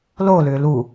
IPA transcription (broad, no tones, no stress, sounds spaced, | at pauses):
l o l ʏː l u